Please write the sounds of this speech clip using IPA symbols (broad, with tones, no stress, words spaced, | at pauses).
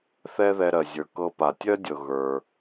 θɛ˥ðɛ˧ɾɜ˩zʲə˞˩ kɤ˧pa˩ tʲɜ˥dʲɤ˩ ɣə˞˩